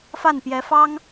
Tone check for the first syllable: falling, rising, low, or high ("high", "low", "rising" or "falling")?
falling